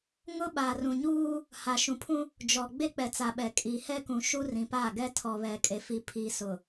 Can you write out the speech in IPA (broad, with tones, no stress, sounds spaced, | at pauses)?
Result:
ŋ ʊ˦ ɓ aː˨ r ũ˨ ɲ uː˦ | h a˨ ʃ ũ˨ pʰ ũ˦ | d͡ʒ ɔ˨ ɡ͡b e˦ k͡p ɛ˨ t͡s a˨ ɓ ɛ˨ kʼ iː˨ h ɛ˦ k ũ˨ ʃ u˦ r ĩ˨ p a˦˨ ɡ ɛ˦ tʰ ɔ˨ β ɛ˨ kʼ e˨ f i˨ pʰ iː˨ s ʊ˨